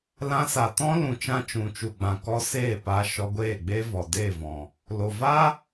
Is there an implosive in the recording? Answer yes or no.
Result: no